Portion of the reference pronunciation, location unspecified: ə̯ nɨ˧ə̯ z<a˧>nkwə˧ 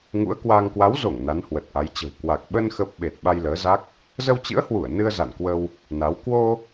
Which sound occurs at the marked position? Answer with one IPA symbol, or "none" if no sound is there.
a̰˧˨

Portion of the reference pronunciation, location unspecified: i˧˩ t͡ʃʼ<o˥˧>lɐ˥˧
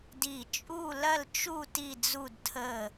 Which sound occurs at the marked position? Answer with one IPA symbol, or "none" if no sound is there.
u˥˧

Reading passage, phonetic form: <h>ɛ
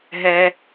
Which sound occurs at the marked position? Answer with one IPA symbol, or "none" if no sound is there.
ɦ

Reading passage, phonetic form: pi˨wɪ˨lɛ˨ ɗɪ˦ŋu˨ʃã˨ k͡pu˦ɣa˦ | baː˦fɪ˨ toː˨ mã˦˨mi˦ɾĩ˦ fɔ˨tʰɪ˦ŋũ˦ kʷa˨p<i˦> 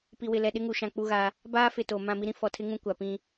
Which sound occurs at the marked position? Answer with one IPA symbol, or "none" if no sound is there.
ĩ˦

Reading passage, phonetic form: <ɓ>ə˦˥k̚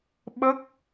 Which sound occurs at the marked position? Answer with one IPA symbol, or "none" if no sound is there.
ɓ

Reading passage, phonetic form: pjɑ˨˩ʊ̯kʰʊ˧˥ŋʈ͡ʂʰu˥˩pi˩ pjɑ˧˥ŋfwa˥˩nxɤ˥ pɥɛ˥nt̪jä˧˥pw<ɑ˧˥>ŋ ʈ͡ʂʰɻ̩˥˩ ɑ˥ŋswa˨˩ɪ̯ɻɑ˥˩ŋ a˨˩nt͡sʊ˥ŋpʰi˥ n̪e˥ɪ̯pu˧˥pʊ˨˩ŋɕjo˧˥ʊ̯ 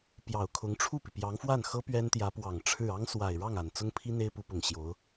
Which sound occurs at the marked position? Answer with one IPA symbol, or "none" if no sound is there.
ɑ˨˩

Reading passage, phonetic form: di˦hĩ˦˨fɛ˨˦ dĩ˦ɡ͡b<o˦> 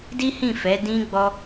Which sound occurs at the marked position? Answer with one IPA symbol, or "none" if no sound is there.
ɔ˦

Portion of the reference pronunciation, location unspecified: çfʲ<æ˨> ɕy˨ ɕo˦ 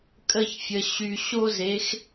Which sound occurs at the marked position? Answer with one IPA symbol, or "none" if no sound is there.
ə˨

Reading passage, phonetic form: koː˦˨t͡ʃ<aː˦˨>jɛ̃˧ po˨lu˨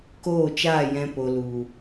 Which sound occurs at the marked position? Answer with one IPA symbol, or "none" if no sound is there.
aː˦˨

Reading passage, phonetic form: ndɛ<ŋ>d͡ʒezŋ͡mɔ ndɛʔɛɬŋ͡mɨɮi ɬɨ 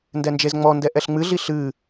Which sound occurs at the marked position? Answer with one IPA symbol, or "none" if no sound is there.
n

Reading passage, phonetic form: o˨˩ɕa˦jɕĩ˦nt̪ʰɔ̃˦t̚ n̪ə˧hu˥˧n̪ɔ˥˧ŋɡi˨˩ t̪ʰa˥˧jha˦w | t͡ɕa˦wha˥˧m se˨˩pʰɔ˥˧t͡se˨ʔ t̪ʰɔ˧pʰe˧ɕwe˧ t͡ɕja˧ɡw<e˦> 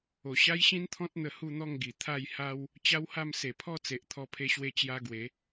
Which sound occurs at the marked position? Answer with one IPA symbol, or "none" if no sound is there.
e˨˦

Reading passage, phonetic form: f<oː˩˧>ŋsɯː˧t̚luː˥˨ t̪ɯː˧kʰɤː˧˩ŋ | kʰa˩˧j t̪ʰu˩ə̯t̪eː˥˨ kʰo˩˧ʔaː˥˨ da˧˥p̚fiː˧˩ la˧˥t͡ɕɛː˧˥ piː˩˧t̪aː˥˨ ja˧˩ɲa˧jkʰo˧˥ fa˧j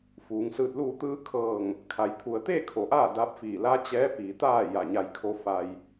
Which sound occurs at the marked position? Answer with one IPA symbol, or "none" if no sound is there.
uː˩˧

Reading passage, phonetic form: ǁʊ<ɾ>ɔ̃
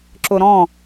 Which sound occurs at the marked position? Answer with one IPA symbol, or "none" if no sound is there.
ɾ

